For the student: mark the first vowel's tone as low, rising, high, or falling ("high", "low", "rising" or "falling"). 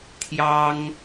high